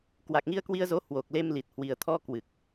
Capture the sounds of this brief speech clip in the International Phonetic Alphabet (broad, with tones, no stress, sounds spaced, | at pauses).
k w a˨˩ k̚ ŋ i˧ ə̯ k w i˧ ə̯ z o˨˦ h w o˨˩ k̚ l e˧ m l i˨˩ t̚ h w i˨˩ ə̯ t̪ʰ ɔ˧ k w ɨ˨˩ k̚